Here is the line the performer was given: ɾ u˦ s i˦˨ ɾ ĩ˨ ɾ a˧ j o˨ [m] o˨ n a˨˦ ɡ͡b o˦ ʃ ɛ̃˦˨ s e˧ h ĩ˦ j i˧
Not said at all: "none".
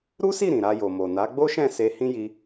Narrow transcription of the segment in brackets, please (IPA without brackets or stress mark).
m